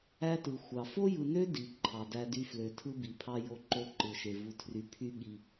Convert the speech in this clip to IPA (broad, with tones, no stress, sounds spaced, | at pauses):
æ˦ t ɯ˨ xʷ ɑ˨ f o˦ j ɯ˨ n ø˦ d i˨ ǃʰ ɑ˨ d æ˦ d y˦ f l ø˨ tʰ ɯ˦ b i˨ pʰ ɑ˦ j o˦ ǃ o˦ ǃ ɯ˨ ʃ e˨ v u˨ tʰ r y˨ pʰ y˦ ɠ i˦